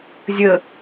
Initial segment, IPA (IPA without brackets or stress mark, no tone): zʲ